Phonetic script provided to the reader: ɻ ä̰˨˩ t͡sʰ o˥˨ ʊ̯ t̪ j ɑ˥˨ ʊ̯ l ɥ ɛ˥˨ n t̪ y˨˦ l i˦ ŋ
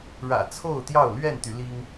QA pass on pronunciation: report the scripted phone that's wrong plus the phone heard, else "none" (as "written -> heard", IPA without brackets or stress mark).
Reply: none